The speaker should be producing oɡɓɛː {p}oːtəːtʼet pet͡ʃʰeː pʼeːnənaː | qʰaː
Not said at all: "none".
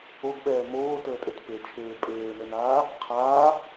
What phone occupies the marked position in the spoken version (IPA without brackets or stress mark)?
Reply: m